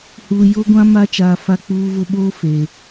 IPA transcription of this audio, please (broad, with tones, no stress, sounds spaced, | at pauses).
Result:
h uː˨ j o˦ ɡʷ ã˦ m a˦ t͡ʃ aː˨ f a˦ k͡p uː˦ v ʊ˦ ɓ oː˦ f eː˨